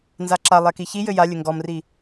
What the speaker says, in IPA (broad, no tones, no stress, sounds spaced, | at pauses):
n z a ǁ a lˠ ɛ k i ç i j ɘ j a lʲ ɘ ŋ ɡ ɔ m r i